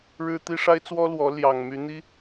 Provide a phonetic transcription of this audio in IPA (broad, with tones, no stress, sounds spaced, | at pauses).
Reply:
ɻ ɻ̩˦ t̪ i˦ ʂ a˦ ɪ̯ t͡s w ɔ˦ l w ɔ˨˦ l j ɑ˨˩ ŋ m y˨˦ n̪ i˦